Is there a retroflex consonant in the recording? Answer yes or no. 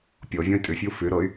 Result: no